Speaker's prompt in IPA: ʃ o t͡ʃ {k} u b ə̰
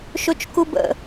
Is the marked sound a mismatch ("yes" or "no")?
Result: no